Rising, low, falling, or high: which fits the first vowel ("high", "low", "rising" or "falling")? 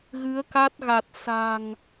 rising